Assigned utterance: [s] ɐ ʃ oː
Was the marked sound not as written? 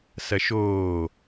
no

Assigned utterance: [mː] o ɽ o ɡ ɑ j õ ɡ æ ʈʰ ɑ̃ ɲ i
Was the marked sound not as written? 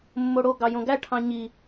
no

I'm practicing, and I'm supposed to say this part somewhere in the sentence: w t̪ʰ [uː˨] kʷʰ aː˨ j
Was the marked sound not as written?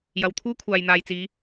yes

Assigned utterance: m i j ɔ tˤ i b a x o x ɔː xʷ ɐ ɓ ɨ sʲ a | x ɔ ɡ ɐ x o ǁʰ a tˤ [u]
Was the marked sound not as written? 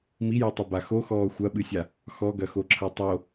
yes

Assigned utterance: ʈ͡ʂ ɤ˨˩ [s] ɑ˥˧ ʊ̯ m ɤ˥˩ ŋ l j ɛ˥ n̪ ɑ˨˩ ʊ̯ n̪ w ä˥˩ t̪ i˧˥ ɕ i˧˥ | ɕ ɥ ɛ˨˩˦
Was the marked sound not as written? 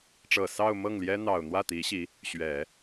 no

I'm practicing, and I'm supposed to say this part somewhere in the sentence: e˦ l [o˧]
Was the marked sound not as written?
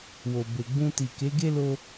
no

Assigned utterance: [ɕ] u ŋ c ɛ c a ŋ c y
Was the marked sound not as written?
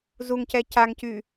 yes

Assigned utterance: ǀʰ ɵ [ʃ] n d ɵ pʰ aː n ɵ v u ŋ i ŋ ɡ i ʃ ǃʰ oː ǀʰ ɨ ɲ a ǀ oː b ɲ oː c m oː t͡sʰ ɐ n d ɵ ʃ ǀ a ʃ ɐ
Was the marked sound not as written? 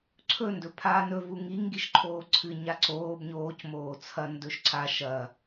yes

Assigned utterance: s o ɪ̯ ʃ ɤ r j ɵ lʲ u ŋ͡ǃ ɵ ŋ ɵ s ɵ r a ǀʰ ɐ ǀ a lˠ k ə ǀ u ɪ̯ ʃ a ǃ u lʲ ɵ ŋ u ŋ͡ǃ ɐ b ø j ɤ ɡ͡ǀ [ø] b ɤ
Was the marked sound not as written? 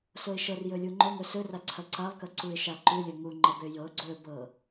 yes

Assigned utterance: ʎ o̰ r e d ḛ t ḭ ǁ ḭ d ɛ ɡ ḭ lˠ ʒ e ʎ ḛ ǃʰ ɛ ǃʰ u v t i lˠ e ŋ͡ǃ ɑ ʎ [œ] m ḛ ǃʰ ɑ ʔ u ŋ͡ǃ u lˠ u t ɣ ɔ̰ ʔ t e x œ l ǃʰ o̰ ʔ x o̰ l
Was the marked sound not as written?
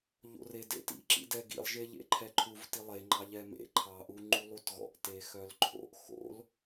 yes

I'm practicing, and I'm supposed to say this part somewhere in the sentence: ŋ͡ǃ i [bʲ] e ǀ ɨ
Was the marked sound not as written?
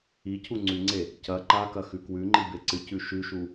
yes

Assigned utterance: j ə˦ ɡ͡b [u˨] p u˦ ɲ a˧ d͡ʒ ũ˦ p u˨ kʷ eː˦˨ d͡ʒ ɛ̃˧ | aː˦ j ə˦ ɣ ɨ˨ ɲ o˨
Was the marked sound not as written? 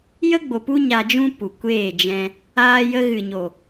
yes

